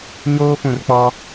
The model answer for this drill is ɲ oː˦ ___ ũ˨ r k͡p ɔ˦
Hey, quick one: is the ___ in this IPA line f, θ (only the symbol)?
f